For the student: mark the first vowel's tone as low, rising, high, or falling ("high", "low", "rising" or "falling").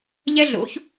high